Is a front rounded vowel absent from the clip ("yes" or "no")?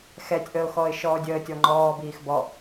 yes